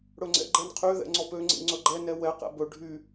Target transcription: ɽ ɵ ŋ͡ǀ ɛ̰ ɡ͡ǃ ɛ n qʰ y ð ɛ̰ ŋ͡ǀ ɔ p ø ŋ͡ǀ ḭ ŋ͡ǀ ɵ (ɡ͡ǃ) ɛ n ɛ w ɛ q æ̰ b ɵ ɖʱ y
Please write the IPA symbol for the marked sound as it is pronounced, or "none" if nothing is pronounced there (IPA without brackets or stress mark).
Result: ɡ͡ǃ